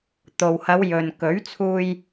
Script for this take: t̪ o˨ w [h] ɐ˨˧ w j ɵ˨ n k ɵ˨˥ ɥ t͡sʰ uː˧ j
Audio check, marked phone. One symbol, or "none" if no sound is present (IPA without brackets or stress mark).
h